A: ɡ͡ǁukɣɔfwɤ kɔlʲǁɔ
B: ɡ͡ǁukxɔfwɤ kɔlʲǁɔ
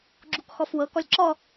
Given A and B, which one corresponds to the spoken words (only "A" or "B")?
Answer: B